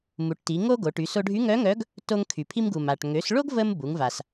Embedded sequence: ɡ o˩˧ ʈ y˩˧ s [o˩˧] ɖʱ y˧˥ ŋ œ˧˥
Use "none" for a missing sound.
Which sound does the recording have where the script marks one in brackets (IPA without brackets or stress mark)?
o˧